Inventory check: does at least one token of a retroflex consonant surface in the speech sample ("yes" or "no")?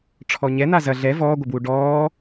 yes